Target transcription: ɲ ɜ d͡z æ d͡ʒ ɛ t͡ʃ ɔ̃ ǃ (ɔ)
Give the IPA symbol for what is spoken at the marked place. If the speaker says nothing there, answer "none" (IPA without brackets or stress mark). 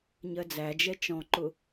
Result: ʊ